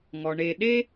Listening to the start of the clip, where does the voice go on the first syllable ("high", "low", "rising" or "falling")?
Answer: low